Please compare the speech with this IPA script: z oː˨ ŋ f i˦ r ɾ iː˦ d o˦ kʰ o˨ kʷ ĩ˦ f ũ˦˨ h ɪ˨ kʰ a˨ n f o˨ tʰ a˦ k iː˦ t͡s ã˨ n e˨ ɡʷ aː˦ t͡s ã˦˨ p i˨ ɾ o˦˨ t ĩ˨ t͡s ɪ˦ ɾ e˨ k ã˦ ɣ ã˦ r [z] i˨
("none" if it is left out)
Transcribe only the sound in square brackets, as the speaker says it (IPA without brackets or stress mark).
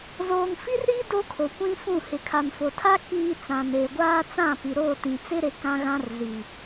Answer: z